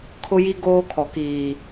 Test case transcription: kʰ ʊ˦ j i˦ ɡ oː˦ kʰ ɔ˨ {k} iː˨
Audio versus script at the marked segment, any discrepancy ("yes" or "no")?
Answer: no